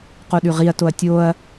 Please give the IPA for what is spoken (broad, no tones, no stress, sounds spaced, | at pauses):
q o ɗ ʉ ʁ i ɐ̯ t o ɐ̯ tʲ o ɐ̯